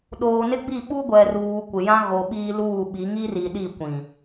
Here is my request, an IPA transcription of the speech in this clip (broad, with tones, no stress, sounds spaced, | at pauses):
ɗ oː˨ n ɪ˦ ɡ͡b i˦˨ ɓ u˦ ɡʷ ɛ˨ r uː˨ kʷ ɪ˨ j ã˦ ɣ o˨ ɓ iː˦ l uː˦˨ ɓ i˨˦ ŋ i˦ r i˨ ɗ i˦˨ kʷ ĩ˨